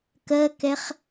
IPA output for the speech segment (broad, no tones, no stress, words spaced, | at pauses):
kɜkɛχ